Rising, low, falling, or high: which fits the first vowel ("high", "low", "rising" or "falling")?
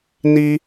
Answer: high